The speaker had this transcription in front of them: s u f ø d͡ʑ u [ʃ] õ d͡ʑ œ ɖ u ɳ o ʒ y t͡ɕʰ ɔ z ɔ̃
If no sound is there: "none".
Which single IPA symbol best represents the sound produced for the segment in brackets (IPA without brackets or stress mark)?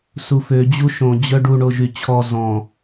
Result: ʃ